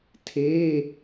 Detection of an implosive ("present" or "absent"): absent